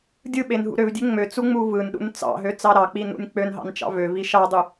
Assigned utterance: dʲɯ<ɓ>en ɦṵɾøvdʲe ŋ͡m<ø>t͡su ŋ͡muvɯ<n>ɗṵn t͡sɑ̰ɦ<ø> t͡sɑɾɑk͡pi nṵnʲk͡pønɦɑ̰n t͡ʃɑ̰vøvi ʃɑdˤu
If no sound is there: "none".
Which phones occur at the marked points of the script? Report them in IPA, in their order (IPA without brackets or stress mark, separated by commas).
ɓ, ø, n, ø